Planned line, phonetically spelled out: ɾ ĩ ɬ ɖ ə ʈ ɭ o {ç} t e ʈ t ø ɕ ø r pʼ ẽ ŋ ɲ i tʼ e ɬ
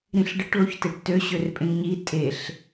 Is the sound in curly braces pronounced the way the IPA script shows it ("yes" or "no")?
yes